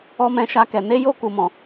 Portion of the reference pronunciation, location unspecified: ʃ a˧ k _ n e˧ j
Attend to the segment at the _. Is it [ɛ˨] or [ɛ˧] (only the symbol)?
ɛ˨